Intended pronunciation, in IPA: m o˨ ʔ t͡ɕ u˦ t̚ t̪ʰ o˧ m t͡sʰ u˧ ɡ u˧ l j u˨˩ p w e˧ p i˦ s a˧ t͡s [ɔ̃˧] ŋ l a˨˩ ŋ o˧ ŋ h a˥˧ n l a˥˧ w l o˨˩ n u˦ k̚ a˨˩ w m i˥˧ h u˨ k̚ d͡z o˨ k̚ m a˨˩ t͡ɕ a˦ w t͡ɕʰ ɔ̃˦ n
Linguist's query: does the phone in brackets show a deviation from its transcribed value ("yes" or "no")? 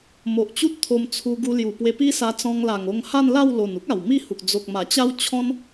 no